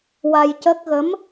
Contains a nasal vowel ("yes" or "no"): no